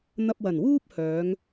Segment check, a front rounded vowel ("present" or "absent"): present